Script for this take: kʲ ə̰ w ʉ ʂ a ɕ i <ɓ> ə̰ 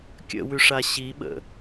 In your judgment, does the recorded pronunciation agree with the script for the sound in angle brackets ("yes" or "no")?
yes